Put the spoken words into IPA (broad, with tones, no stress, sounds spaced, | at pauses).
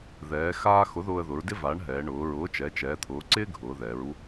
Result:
ð ɛː˩˧ x aː˥ x ʊ˨˥ ð ʊː˧ ə̯ ð ʊ˩˧ ɹ d ɪ˥ v a˨˥ ɳ ɦ ɛː˩˧ ɳ ʊː˩˧ ɹ ʊː˨˥ t͡ʃ ɛ˩˧ t͡ʃ ɛː˩˧ t̪ʰ ʊː˩˧ ǀ ɪː˥ ɡʱ ʊː˩˧ ð ɛː˩˧ ɹ u˥